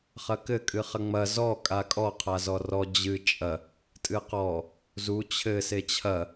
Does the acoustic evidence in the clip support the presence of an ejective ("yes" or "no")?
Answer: yes